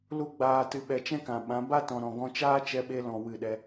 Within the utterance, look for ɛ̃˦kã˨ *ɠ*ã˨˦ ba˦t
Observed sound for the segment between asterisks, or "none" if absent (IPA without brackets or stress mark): ɓ